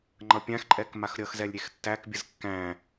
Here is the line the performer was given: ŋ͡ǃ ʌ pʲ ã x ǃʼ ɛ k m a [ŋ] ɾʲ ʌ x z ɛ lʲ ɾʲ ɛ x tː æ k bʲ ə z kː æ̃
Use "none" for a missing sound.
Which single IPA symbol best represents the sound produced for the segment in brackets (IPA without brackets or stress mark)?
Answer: x